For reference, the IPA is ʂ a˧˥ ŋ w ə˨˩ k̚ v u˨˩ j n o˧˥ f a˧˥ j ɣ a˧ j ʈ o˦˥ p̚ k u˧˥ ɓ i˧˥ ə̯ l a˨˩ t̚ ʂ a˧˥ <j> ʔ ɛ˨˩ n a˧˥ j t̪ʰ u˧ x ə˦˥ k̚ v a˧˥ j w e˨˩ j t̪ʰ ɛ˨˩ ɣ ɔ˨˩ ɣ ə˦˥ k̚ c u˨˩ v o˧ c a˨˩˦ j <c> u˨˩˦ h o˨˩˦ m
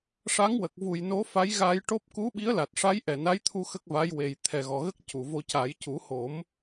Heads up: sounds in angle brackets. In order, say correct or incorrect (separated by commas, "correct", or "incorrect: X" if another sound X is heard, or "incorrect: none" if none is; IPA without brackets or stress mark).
correct, correct